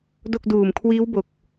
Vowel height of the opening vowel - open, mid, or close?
mid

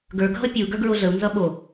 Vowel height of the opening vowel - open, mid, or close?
mid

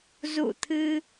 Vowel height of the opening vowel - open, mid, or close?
close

